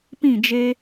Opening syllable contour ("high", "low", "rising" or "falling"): falling